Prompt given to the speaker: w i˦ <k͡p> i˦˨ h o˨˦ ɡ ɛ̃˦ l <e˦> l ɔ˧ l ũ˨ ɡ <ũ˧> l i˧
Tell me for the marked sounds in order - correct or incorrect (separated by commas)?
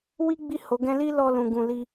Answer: incorrect, incorrect, incorrect